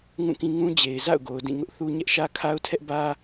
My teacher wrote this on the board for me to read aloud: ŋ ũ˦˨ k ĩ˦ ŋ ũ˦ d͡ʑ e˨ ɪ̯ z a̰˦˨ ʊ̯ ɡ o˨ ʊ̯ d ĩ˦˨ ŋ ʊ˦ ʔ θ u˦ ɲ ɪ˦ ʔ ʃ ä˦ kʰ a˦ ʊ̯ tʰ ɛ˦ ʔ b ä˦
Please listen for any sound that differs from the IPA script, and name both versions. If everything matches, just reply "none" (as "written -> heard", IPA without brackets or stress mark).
ɪ˦ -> ɛ˦